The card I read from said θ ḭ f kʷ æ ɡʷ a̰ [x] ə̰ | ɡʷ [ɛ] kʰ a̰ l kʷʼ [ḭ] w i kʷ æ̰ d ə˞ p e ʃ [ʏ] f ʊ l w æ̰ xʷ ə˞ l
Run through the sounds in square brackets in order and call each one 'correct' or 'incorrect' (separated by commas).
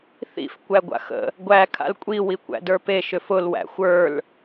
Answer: correct, incorrect, incorrect, correct